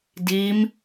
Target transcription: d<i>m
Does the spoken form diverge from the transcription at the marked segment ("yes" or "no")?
no